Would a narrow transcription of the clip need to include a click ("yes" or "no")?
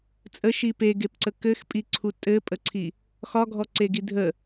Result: yes